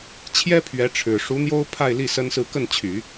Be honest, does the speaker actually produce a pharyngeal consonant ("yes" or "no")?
no